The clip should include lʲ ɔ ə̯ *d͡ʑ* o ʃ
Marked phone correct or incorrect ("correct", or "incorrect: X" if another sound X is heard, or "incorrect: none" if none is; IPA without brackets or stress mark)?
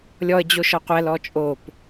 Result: correct